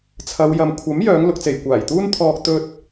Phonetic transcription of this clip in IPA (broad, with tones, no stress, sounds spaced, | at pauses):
t͡sʰ ɐ˨˧ w j ɐ˨ m kʷʰ ɐ˨˥ m j œː˨˧ ŋ l ʊ˨ k̚ t͡s e˨˩ j kʷ aː˨˩ j t̪ uː˥ n t̪ʰ ɔː˧ k̚ t̪ ɵ˥ t̚